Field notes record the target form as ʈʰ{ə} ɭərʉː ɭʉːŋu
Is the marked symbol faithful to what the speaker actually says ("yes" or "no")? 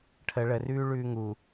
yes